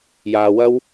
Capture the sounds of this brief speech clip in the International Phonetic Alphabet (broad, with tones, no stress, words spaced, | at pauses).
jaː˧wɐ˥w